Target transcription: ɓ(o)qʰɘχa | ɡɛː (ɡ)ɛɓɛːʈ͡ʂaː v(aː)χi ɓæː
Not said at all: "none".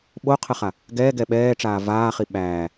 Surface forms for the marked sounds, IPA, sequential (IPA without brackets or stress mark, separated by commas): o, ɡ, aː